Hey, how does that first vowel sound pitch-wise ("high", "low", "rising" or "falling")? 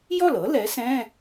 falling